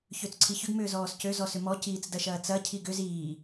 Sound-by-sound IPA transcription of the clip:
ç ø t͡s ǀʰ i ç ʏ ɡ m ʏː z ɔː s c ø z ɔ s ʏ m ɔ c iː t͡s d ɐ ʃ ɐː t͡s ɐ cʰ i ɡ ʏ z iː

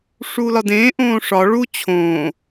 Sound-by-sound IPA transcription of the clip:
ʂ u l ɒ d ẽː ʔ õː ʂ ɒ ɭ u t͡ɕʰ õː

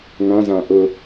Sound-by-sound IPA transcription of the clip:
ŋ ã z ã ʔ ʊ

